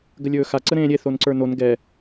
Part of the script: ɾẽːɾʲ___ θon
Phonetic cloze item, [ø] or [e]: e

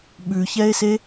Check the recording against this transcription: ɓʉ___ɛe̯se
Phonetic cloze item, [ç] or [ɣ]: ç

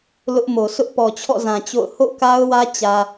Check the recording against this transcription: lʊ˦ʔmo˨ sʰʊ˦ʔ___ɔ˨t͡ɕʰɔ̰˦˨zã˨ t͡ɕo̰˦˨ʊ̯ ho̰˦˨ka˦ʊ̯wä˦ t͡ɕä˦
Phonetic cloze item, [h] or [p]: p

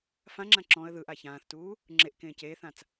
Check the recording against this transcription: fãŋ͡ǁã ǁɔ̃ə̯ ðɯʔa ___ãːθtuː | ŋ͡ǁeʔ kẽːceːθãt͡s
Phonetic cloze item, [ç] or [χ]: ç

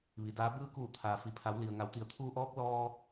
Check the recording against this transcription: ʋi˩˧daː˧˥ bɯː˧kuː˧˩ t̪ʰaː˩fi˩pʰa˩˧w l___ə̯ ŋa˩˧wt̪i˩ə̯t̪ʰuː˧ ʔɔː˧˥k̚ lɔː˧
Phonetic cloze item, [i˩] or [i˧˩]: i˩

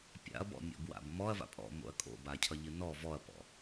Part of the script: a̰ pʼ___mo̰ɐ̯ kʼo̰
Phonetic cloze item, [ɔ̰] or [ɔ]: ɔ̰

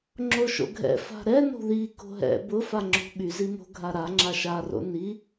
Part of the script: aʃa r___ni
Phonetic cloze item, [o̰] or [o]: o̰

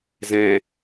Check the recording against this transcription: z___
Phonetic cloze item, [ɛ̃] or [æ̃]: ɛ̃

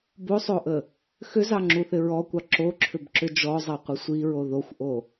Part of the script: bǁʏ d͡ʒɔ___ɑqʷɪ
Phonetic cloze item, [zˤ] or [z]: zˤ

